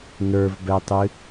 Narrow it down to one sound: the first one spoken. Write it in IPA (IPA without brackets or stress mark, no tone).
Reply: n